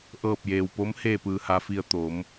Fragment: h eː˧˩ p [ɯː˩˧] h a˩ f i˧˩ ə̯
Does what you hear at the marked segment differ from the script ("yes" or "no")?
yes